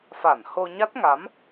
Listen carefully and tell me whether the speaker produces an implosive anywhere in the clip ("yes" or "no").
no